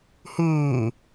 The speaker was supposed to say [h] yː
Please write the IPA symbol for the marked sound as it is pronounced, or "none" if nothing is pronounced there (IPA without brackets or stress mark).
h